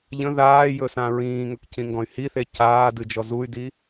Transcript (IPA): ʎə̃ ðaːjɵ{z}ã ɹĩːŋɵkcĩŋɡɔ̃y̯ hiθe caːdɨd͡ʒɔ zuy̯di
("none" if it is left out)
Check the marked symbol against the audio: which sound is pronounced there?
s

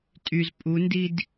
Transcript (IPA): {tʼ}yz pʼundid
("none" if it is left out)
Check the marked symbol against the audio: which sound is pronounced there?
tʼ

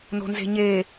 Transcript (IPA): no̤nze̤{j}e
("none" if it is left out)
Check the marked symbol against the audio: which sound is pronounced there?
ɲ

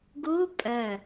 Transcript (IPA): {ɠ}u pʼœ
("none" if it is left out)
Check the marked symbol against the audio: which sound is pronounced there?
ɡ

